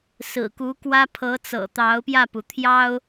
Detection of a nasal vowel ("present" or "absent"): absent